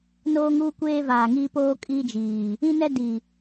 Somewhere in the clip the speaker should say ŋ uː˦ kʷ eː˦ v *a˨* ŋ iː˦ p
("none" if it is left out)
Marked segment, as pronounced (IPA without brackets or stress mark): aː˨